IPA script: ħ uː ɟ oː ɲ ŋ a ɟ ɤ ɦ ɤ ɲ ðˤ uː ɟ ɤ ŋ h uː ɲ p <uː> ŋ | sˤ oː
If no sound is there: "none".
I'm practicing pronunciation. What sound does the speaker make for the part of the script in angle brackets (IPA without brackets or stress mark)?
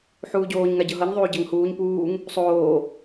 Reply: uː